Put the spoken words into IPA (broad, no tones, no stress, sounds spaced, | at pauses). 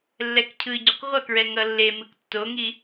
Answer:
lː ɛ k cʰ ɯ ɟ u q ʁʷ ʌ k ɹ ɛ ŋ ʌ lː e m ɯ k tː o ŋ i